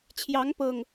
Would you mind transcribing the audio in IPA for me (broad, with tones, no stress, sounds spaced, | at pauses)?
t͡ɕʰ j ɑ˨˦ ŋ p ɤ˨˩ ŋ